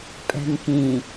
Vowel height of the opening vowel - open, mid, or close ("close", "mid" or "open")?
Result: mid